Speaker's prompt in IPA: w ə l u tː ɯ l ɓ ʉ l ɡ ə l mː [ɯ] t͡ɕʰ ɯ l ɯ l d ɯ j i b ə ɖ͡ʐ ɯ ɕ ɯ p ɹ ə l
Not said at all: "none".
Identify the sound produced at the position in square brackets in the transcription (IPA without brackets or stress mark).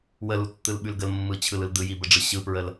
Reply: ɯ